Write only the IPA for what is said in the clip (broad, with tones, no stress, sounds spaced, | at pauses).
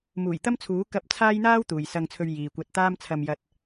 m uː˨˩ j t̪ ɐ˥ m t͡sʰ uː˨˥ k ɐ˧ p̚ t͡sʰ aː˥ j n̪ aː˥ w t̪ uː˨ j s ɐ˧ ŋ t͡sʰ ɵ˧ ɥ j iː˨ kʷ ɐ˧ t̚ t̪ aː˥ m t͡sʰ ɐ˧ m j ɐ˧ t̚